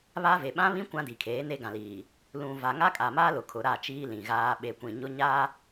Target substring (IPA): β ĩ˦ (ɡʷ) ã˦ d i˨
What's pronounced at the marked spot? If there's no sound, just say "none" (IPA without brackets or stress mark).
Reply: kʷ